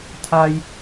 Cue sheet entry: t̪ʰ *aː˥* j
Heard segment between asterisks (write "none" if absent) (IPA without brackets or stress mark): aː˥